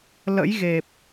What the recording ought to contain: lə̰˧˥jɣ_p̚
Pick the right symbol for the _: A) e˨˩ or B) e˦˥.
A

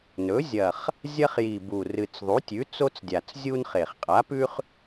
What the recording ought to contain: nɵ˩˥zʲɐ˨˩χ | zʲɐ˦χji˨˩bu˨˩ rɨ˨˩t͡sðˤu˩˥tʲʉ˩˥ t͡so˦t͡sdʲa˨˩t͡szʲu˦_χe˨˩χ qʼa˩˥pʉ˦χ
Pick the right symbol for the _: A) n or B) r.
A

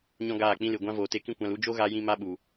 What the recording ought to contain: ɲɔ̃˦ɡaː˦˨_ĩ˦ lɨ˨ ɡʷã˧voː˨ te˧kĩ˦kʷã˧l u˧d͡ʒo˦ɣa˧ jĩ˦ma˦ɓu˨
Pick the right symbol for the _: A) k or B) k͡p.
B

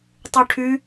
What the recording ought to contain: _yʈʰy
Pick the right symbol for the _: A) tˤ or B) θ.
A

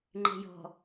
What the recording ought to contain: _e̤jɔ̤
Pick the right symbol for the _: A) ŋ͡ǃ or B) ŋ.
A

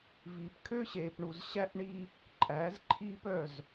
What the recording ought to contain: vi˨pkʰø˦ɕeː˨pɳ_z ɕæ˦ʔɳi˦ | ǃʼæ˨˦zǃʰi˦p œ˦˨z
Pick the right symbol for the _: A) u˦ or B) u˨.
B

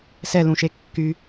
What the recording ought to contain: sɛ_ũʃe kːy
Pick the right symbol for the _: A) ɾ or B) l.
B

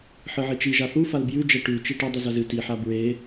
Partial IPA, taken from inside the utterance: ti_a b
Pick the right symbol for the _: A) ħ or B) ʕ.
A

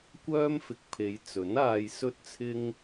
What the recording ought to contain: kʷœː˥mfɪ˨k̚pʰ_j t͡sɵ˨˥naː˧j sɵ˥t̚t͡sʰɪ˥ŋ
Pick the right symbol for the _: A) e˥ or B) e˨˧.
B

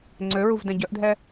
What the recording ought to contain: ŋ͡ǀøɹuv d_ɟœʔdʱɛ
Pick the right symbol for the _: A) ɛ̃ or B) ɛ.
A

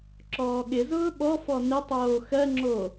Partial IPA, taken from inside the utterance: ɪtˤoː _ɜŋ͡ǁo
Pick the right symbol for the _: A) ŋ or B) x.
B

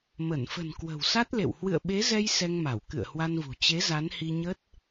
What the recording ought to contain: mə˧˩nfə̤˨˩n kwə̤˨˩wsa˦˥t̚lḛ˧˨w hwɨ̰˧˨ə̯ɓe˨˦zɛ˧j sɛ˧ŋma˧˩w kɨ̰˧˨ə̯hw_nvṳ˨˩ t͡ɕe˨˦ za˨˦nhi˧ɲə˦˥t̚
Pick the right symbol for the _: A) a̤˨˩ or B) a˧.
B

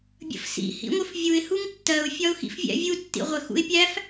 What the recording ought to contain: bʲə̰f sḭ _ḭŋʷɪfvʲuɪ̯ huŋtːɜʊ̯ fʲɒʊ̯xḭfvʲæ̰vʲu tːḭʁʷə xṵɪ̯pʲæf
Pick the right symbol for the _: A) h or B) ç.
A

